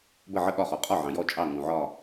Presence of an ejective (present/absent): present